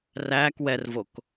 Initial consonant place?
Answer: alveolar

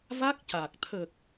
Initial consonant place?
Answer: labial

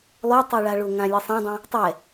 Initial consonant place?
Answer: alveolar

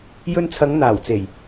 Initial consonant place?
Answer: palatal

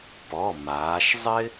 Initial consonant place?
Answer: labial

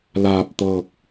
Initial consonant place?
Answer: alveolar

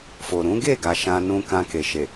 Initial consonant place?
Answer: labial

